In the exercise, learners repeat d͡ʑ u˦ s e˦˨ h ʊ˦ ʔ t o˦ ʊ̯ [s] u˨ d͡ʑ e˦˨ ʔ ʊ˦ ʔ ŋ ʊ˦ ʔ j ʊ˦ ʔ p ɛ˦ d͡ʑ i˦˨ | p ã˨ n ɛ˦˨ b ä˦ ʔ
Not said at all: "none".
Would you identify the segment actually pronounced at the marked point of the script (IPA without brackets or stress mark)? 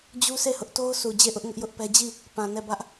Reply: s